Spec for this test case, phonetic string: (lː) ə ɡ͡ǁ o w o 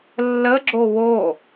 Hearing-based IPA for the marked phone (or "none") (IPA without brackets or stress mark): lː